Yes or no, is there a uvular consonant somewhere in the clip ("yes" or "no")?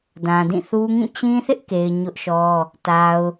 no